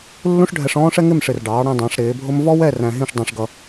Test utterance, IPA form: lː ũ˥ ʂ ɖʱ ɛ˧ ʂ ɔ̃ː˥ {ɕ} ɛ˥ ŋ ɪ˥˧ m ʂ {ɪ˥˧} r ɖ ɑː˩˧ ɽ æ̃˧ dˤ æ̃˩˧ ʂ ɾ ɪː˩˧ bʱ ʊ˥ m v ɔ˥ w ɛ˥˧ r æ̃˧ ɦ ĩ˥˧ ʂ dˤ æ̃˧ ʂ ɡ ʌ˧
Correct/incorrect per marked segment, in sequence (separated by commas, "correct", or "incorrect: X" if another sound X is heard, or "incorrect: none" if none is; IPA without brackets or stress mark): incorrect: ʂ, incorrect: ɪ˧˩